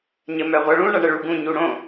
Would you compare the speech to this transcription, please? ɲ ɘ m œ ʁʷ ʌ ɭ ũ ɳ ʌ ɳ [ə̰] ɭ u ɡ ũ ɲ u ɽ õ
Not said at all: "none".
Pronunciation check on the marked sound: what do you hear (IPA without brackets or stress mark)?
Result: ə